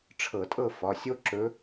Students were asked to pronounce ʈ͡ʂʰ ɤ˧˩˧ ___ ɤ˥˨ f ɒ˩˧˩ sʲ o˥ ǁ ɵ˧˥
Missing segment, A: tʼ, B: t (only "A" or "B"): A